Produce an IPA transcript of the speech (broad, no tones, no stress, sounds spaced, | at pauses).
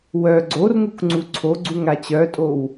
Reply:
w œ ɡ͡ǀ o r ŋ u k ŋ͡ǀ u ǀʰ o ɡ͡ǀ u ŋ ɾ a t͡ɕ œ tʼ o w